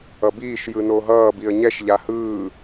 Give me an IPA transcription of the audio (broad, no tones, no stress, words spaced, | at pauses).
ʌbiːʃ jɯnoɦʌː biə̯ɲɛʃ ʎahɯː